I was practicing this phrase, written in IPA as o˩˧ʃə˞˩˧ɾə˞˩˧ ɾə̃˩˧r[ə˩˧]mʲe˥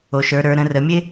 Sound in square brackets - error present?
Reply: no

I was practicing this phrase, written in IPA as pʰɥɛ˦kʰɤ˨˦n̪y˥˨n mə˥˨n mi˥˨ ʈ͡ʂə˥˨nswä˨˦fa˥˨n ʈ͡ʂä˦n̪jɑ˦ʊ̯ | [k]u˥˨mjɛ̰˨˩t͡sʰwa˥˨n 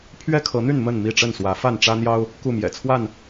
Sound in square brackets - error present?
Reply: no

